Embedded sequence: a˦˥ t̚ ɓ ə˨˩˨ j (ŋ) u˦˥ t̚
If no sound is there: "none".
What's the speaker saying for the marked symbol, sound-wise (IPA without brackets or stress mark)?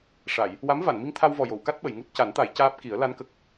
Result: ŋ